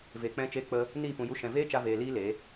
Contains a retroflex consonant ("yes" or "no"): no